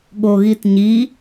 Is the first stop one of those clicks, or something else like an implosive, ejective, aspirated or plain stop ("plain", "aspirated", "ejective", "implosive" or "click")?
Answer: implosive